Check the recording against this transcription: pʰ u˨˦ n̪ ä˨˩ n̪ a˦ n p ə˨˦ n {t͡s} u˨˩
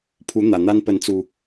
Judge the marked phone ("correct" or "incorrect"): correct